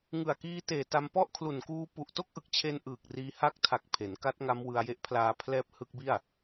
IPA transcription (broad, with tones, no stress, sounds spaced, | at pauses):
ŋ ɯ˨˩ a̯ k iː˧ t eː˨˩ t a˧ m p ɔ˥˩ ʔ kʰ l u˨˩ n k uː˦˥ p u˨˩ ʔ t o˥˩ k̚ ʔ ɯ˨˩ k̚ t͡ɕʰ e˧ n ʔ ɯː˨˩ k̚ r iː˧ h a˦˥ k̚ tʰ a˨˩ k̚ pʰ e˩˦ n k a˦˥ t̚ ŋ a˦˥ m w ɯ˧ a̯ j e˦˥ ʔ pʰ l aː˧ pʰ l ɛː˦˥ p̚ h ɯ˦˥ k̚ b i˥˩ a̯